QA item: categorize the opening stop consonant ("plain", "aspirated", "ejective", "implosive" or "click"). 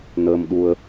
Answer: implosive